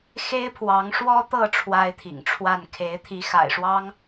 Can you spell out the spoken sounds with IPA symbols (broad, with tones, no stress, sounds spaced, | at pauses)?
x e˦ ɪ̯ pʰ w ɑ˨˦ ŋ ʂ w ɔ˦ t̪ ɤ˥˨ ʈ͡ʂʰ w a˦ ɪ̯ t̪ʰ ḭ˨˩ ŋ ʈ͡ʂʰ w a˥˨ n kʰ e˨˦ ɪ̯ t̪ʰ i˨˦ x a̰˨˩ ɪ̯ ʂ w ɑ˦ ŋ